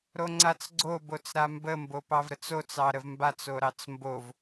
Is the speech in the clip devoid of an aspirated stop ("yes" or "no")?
yes